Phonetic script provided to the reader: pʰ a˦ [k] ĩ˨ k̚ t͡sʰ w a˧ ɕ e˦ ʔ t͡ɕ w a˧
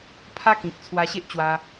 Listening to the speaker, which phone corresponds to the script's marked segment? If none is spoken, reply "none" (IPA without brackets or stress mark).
k